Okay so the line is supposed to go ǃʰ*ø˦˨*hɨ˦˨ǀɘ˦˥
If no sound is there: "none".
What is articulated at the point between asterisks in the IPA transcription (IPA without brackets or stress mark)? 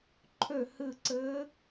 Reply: ø˦˨